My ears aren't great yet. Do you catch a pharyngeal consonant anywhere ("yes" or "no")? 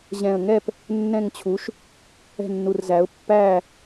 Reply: no